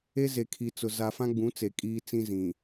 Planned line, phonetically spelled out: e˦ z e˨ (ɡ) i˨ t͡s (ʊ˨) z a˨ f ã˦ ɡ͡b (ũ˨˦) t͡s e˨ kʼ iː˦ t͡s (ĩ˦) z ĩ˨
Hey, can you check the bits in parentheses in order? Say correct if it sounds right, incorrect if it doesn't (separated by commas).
incorrect, correct, correct, correct